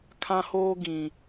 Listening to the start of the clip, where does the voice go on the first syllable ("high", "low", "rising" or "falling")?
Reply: high